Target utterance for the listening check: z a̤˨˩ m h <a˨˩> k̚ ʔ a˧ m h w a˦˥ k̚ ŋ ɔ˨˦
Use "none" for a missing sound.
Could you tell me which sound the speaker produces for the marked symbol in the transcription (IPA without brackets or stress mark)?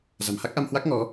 a˦˥